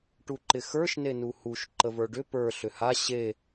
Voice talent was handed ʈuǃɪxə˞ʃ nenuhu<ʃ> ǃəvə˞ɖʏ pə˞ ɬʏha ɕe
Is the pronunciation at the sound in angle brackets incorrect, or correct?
correct